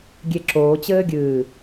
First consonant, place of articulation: velar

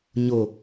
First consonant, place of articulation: palatal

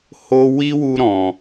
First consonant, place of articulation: glottal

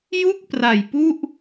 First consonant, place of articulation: palatal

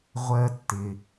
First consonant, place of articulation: uvular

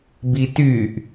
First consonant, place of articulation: labial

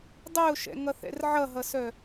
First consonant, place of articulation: alveolar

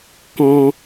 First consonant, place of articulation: velar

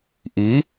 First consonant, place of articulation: glottal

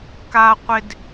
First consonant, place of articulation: velar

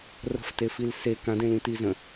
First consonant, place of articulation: alveolar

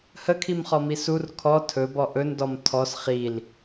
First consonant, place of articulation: glottal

